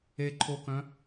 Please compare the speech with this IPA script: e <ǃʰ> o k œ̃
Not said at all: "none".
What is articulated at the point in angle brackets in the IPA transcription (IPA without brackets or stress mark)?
ǃʰ